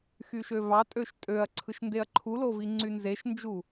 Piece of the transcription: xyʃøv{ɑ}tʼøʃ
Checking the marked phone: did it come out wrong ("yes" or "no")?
no